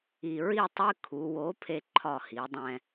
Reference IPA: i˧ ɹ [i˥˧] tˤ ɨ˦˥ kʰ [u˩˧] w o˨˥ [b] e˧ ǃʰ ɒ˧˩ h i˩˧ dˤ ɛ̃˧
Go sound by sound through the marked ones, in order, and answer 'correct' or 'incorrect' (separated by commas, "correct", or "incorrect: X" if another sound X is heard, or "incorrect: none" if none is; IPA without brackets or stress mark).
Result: correct, correct, incorrect: pʰ